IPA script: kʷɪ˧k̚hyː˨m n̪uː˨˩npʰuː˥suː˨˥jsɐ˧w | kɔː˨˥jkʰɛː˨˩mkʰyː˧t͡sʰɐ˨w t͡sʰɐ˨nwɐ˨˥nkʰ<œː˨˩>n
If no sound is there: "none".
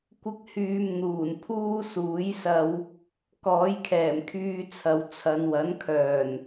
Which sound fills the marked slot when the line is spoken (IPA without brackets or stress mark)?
œː˨˩